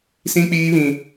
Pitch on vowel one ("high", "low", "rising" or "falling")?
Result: high